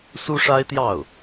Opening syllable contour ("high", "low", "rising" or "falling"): high